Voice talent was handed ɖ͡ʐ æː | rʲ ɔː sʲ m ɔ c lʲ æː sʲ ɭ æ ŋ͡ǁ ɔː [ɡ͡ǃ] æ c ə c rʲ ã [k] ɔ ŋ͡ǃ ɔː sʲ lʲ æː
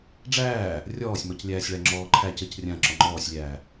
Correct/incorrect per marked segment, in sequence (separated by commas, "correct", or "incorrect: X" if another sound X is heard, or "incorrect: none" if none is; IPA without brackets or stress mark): incorrect: ǃʰ, incorrect: ǁ